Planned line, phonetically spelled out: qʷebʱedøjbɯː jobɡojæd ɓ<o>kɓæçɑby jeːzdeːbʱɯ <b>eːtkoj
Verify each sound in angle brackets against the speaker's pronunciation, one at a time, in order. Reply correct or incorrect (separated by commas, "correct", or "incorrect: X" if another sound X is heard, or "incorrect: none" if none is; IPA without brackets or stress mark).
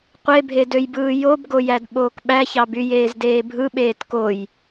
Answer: incorrect: oː, incorrect: ɓ